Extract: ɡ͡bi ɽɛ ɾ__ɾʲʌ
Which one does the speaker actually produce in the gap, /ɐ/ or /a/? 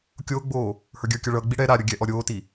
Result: a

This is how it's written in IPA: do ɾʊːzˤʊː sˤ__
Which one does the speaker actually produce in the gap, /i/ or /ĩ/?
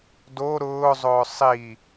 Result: i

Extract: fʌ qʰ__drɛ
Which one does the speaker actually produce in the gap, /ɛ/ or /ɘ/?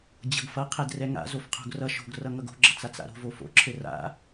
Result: ɛ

